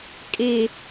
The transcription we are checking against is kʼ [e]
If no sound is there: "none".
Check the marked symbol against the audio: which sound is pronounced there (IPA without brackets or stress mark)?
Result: e